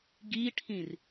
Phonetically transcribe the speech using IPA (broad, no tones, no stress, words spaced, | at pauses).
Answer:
ɡiʈʰĩr